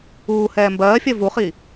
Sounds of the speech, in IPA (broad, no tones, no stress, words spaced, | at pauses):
uːhɛː mbɜːfʲɜ vuχi